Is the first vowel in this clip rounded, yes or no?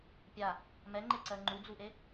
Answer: no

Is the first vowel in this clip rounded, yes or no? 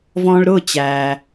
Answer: yes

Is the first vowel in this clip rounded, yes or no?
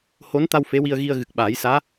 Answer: yes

